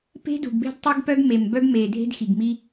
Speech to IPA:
p e̤˦ d ṳ˨ ɡ b e̤˦ d tˤ e˦ ɡ p œ˦ ɡ m e˨ m b œ˦ ɡ m e˨ dʱ e̤˦ d x i˨ ɡ m i˦

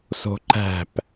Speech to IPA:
s o̤ ǃ æ̤ p

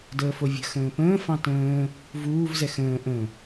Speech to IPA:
d əː f o vʲ ə̤ x ə̃ː p ə̃ː f ɑ̃ t ə̃ː | v uː v z ɛ x ə̃ː ʔ ə̃

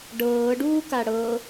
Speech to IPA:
ɖ ɤː ɖ uː k a ɽ ɤ

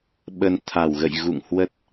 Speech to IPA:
ɓ ə˧ n t̪ʰ a˧˩ w ɣ ə̰˧˨ j ɣ ṵ˧˨ ŋ h w ə˦˥ t̚

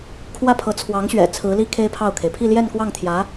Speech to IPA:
kʰ w ä˥˩ pʰ ɤ˧˥ t͡sʰ w ɑ˧˥ ŋ ɕ ɥ ɛ̰˨˩ t͡sʰ ɹ̩˧˥ l i˥ kʰ e˥ ɪ̯ pʰ ɑ˥˩ ʊ̯ kʰ e˩ ɪ̯ pʰ i˥˧ l j ɛ˥˧ n k w ɑ˥˩ ŋ t̪ʰ j ä˧˥

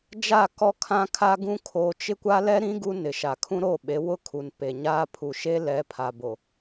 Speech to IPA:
d͡ʒ a˦˨ k ɔ˦ kʰ ã˦ kʰ a˦ ɡ ũ˦ kʰ o˦ t͡ʃ ɪ˦ kʷ a˦ l ɛ˦ ɾ ĩ˦ ɡ u˦ n ɪ˨ ʃ a˨ kʰ ũ˦ ɾ o˦˨ ɓ e˨˦ w ʊ˦ kʰ u˨ n p e˨ ɲ aː˦ pʰ u˨ ʃ e˦ l ɛ˨˦ pʰ a˨ b o˨

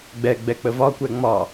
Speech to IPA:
ɡ͡b ɛ ɡ͡b ɛ k͡p ə v ɒ kʷ ɛ ŋ͡m ɒ

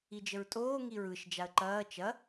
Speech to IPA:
i d͡ʒ ə ɹ tʼ oː ŋ i ɹ ɯ ʃ d͡ʒ a ə̯ ǃ ɐː t͡ʃ ɐ

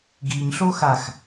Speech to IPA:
ɡ i ɲ ɬ o x a x

